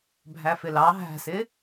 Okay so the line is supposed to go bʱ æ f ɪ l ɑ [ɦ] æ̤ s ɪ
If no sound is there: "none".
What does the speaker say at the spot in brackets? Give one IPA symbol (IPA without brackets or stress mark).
ɦ